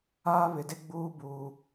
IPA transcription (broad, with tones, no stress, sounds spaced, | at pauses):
aː˦ β ɪ˨ d ɪ˦ ɡ͡b uː˦ b uː˨